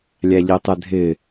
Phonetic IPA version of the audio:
lʲæʎitˤɪdʱɪ

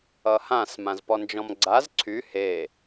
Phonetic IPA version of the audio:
ʌhãs mãzpɔnd͡ʒɔ̃mɡ͡ǀaz ǀʰy he

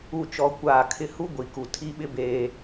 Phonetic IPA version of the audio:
u˦˨t͡ʃɔ˦kʷaː˦˨ kʰɪ˦ hu˦ɡʷi˨ku˨ tʰi˦ɓɪ˦ beː˦

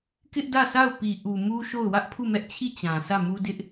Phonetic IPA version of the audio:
kɪ˦ʔdä˦˨sʰa˦˨ʊ̯ pi˨ʔu˨ mu˦ʃo˦˨ʊ̯ wä˦ʔpʰu˦˨mɛ˦ʔt͡ɕʰi˦˨ t͡ɕã˨sä˦˨mu˦ dɪ˦ʔ

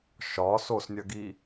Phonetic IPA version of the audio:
ʃɒ sosnʲɐɡi

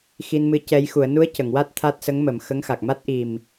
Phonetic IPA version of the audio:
xi˧nmɨ˧˥ cɛ˧j xu˨˩˨ə̯nu˧˥ə̯ cə˨˩˨ŋwa˦˥t̚ t̪ʰa˦˥t̚sə˧˥ŋmə˨˩˨m xə˧˥ŋxa˨˩k̚ ma˦˥t̚ʔi˨˩m

